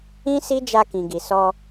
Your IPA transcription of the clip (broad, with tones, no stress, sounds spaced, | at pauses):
ĩ˦ s i˦ d͡ʒ a˧ k ĩ˨ ɡ i˨ s ɔ˧